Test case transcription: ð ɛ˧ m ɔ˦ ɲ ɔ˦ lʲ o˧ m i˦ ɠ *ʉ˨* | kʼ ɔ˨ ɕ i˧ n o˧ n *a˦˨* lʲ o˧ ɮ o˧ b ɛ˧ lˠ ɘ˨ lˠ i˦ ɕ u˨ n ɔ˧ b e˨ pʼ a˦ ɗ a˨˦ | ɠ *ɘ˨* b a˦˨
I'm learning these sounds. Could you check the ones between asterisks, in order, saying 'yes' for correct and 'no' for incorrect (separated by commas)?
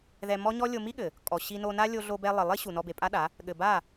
no, no, yes